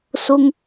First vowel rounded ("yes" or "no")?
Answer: yes